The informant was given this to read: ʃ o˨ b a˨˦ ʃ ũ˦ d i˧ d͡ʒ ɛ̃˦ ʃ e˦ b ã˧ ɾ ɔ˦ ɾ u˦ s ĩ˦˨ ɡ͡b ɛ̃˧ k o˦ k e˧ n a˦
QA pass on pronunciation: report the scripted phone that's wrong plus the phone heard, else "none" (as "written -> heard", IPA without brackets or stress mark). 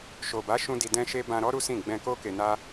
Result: d͡ʒ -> d